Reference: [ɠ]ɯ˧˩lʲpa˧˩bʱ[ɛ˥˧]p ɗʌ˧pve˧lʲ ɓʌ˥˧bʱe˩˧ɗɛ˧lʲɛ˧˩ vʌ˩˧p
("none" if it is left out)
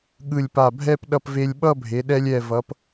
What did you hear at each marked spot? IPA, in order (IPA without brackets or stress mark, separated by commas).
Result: ɠ, ɛ˥˧